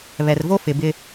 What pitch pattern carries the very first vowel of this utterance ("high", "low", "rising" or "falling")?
low